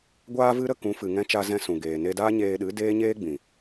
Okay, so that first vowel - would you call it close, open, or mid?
open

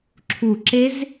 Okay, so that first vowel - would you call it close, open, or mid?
close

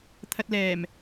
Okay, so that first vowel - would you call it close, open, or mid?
open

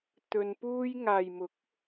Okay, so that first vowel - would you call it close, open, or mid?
mid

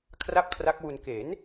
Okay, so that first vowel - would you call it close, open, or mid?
open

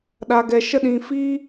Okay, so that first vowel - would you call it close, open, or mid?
open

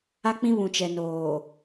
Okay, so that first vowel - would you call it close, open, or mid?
open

